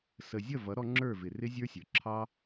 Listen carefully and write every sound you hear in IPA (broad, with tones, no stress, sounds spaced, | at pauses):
s ə˨ zʲ ʌ˦˨ v ʌ˨˦ ɾ ɔ˧ ŋ͡ǁ ə˞˦˨ v ɪ˨ r ɪ˦ zʲ ə˞˦ sʲ ə˞˨ ǁʰ ɑ˦